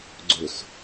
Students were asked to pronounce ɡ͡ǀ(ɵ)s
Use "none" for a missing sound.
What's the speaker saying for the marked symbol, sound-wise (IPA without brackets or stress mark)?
ɵ